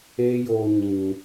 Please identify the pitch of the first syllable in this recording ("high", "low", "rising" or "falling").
high